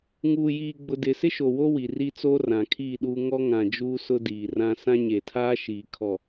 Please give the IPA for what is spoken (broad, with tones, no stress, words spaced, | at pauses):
ŋuː˨jiː˨ɡ͡bʊ˨ dɪ˨sɪ˦ʃo˨wo˦ wi˨ri˦t͡soː˦ rã˨kʰiː˦˨ɗuː˦ ŋɔ˦ŋã˨d͡ʒuː˦ sʊ˦diː˨rã˦ sã˦ɲeː˨tʰaː˦ ʃiː˨kʰɔ˨